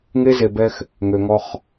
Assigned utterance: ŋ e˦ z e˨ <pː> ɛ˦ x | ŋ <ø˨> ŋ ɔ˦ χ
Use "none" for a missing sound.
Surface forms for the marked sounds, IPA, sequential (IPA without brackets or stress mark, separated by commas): b, ø˨